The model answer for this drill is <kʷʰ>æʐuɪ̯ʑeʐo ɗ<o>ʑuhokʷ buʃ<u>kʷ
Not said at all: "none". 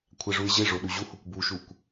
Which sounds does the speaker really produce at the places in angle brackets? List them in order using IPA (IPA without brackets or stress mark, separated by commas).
kʷʰ, u, u